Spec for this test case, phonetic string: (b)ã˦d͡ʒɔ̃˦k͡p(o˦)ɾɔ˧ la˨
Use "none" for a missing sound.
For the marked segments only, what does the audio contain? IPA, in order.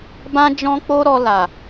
b, o˦

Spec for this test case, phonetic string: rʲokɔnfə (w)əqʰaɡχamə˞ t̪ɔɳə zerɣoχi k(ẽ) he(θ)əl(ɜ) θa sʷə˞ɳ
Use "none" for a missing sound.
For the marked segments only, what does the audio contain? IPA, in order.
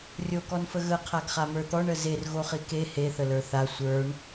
ɣ, e, θ, ə˞

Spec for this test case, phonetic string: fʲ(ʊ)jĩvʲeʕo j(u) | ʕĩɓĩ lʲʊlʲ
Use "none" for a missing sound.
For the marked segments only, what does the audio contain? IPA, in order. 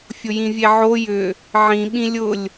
ʊ, ʏ

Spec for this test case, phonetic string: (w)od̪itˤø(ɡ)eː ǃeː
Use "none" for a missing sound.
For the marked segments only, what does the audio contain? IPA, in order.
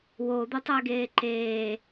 w, ɡ

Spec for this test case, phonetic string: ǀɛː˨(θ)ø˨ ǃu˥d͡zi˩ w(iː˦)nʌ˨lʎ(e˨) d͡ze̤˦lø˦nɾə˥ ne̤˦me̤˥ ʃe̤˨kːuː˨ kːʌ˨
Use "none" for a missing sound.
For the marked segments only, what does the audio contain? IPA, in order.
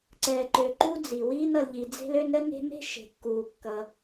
ǃ, iː˦, i˨

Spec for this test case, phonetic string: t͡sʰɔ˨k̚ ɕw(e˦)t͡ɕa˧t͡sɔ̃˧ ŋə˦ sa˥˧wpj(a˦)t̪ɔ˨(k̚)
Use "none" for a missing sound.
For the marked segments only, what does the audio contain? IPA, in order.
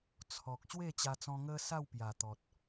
e˥˧, a˨˩, t̚

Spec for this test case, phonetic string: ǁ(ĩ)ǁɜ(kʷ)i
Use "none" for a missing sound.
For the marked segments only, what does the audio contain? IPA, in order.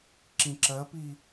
ĩ, p

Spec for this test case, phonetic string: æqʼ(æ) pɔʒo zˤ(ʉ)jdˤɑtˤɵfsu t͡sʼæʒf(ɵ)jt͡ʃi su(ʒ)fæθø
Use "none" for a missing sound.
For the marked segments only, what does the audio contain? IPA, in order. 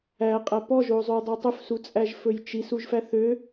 æ, ʉ, ɵ, ʒ

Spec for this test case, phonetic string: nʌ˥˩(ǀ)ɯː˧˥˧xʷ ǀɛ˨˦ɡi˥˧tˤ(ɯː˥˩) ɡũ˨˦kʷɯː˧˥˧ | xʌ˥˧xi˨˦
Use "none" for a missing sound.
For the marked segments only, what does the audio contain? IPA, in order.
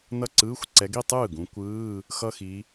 ǀ, ɯː˥˩

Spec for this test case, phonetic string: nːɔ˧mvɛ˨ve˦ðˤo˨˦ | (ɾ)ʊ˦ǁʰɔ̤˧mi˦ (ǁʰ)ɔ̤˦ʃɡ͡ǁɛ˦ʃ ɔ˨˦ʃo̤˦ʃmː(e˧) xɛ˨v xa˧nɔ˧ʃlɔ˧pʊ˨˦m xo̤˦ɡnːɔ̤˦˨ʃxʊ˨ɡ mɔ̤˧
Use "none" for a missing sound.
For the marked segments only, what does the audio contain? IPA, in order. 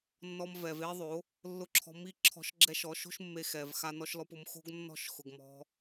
lː, ǁʰ, e˧

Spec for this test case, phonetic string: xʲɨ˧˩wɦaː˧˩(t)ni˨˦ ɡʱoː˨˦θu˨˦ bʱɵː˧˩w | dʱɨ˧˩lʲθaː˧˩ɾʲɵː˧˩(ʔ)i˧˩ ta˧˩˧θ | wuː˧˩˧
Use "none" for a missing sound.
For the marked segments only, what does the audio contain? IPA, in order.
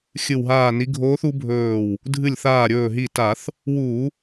none, ɦ

